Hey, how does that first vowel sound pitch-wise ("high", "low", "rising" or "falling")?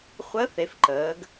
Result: rising